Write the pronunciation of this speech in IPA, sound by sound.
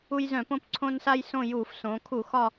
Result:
u˦ j z œ̃˧˩˧ p õ˦ p ǀʰ õ˦ n s a˦ j s õ˦˨ j uː˧˩˧ f s õː˩˧ kʰ u˧˩˧ x ɒ˦˨

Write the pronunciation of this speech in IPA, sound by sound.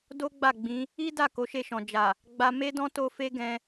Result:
d o˦ ɡ͡b a˦˨ ɡ͡b ĩ˨˦ | i˦ d a˦˨ k o˨˦ ʃ e˦˨ ʃ ɔ̃˨ d͡ʒ a˨ | ɡ͡b a˧ m e˦ d ɔ̃˦ t o˦ f e˦ ɡ ɛ̃˧

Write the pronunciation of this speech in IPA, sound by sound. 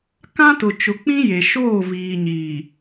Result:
k ã˦ t ʊ˨ t͡ʃ ʊ˨ k͡p ĩ˦ j e˨ ʃ oː˦˨ v iː˨ ɲ iː˨

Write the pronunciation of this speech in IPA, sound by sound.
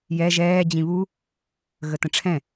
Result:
j ɛ ʒ ɛː d͡ʑ ĩ β u | ɣ ə t ə̃ ʈ͡ʂʰ ɛ̃

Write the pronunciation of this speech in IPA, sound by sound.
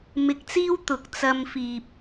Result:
m ɪ˧ k̚ t͡s iː˥ w t̪ ʊ˨ k̚ t͡s ɐ˧ m f iː˨ p̚

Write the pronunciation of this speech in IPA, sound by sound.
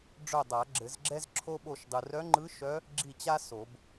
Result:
ɖ͡ʐ œ˦˨ dˤ a˨˩˦ ɡ͡ǁ ɘ˨˩˦ z ɡ͡ǁ ɛ˥ z ǁʰ o˥ ɓ o˦˨ ʃ dˤ ɯ˨ r œ˧˥ ŋ͡ǃ ɯ˧˥ ʃ œ˧˥ | ɡ͡ǁ i˦˨ t͡ɕ a˥ s o˨˩˦ b

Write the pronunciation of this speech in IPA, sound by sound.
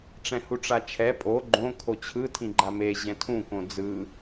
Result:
ʈ͡ʂ ɛ̃ h u ʈ͡ʂ a t͡ʃʰ ɛ pʼ o ɡ͡ǃ õ kʰ o t͡ɕʰ ɯ tʰ ĩ ɡ͡ǃ a m e ʑ ɛ̃ tʰ ũ k õ d͡z ɯ

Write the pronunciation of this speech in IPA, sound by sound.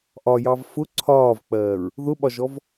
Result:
ʔ ɒ j ɑ v f ʊ ǀʰ ɒː v k͡p ɜː ɹ | ð ʊ ɓ ɒ ʒ ɔ v

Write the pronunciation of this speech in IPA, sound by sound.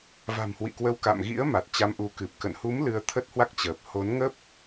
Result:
v a̤˨˩ m h w ḭ˧˨ k w ə˨˦ w k a̰˧˨ m ɣ ḭ˧˥ ə̯ m a˨˩ t̚ t͡ɕ a˧ m ʔ u˨˦ k ɨ˨˩ p̚ k ə̰˧˨ n h u˨˦ m l ɨ˧ ə̯ t̪ʰ ə˦˥ t̚ h w a˦˥ k̚ t͡ɕ əː˨˩ p̚ h o˨˦ n ŋ ə˦˥ p̚

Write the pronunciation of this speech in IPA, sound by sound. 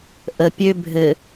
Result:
ʔ ə pʲ ø bʱ ɘ

